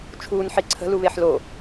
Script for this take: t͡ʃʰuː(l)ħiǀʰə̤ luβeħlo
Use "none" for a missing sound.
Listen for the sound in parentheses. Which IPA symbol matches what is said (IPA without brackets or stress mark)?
n